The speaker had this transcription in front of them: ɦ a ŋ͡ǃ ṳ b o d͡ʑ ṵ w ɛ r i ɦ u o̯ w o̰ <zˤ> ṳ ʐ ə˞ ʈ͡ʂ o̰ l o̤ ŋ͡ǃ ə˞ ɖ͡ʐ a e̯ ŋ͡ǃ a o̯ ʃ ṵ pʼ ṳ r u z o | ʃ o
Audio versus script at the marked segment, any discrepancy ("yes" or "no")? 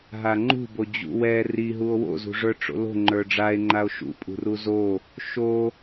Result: yes